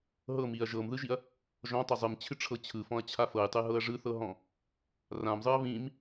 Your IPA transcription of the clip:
ɦ ɤ m i ɐ̯ ʒ ɤ m ð ɯ ʒ i ɐ̯ | ʒ ɔ̃ tˤ ɤ zˤ ɯ m t͡ɕʰ ɨ ʈ͡ʂʰ ɤ t͡ɕʰ ɯ f ɔ̃ ɐ̯ t͡ɕʰ a f ɤ j tˤ ɨ ɦ ɤ ɐ̯ ʐ ɯ θ ɤ ɦ ɔ̃ | r ã m zˤ ɯ ɐ̯ β ĩ m

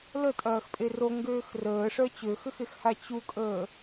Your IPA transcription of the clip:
l ə tʼ ɐː x pʼ e r o ŋ ɡ øː x r əː ʂ œ t͡ɕ ø x ʏ x e x h a t͡ɕ u kʼ əː

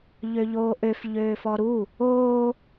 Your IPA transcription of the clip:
ʎ ø ʎ oː ʔ ø f ʎ øː f ɔ ɾ u | oː

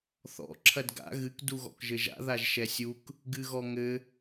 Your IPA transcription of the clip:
θ ɔ̰ ǁʰ ɐ d ɡ a̰ ɣ ɨ k d u ɣ ɔ̰ k ʒ ɘ ʒ a̰ ð a ʒ ʃ ɛ sʲ u k | ɡ ɨ ɣ ɔ ŋ ɘ

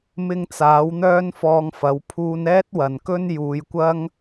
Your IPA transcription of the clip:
m ɪ˧ ŋ t͡s aː˨˥ w n̪ œː˥ n f ɔː˧ ŋ f ɐ˨˥ w pʰ uː˧ n ɛː˥ t̚ w ɐ˨ n k ɵ˥ n j uː˨˧ j kʷ ɐ˥ ŋ

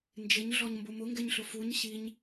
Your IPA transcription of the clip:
n d͡ʒ ɪ ɲ ɮ ɔ ɲ m b ʊ m ʊ ŋ ɡ ɛ ɲ ɬ ʊ f u ɲ ɕ i ɲ

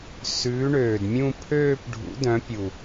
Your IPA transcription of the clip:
s ʉː˨˥ ɳ øː˨˩ d mʲ ũ˥˧ pʰ øː˥˧ p ɖʱ ṵ˨˥ d œ̃˨˥ pʲ u˨˩

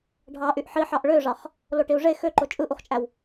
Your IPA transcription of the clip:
ɖʱ ɑ ʔ y ʔ ħ i ħ ɑ ʔ ɭ ø ʐ ɑ χ | l o ʈ i u̯ ʐ e x ø ǃ o t͡ʃʼ ɯ ʔ u χ t͡ʃʼ æ w

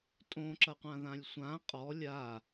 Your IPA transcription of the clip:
tʼ õ ǁ ɐ qʷ ã ð ã lʲ sʷ ã qʼ ɔ lʲ a

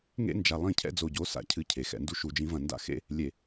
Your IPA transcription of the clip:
ŋ ḛ˦ n d͡ʒ a˨ lˠ ĩ˦˨ cʰ ɛ̰˦ d͡z o˨ ɟ o˨˦ s a̰˦ cʰ ɨ˦ cʰ e˨ x ɛ̰˨ n d u˦ ʃ u˨ d͡ʒ ĩ˨˦ v ɐ̃˨ n d a̰˦ x ḛ˦ | lʲ e˨

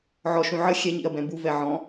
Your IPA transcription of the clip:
ʕ ɔ ʃ ũ ʕ ə xʲ ɛ ɲ ḭ ɐ̯ b ɛ̃ b u v ɛ ʕ ɔ̃

